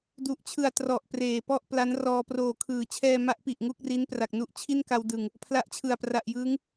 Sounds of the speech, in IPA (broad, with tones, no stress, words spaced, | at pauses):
du˨˩ʔt͡ɕʰɯ˨˩a̯ trɔ˨˩ʔ preː˨˩pɔ˥˩ʔ pla˦˥nrɔː˧ proː˨˩kʰɯː˩˦t͡ɕʰɛː˧ ma˦˥ʔpi˨˩ʔ ŋu˥˩k̚ ri˦˥n pra˨˩k̚nu˥˩ʔ t͡ɕʰi˥˩nka˧w dɯ˨˩ŋ | pʰla˦˥ʔt͡ɕʰɯ˨˩a̯pra˨˩ʔjɯː˦˥ŋ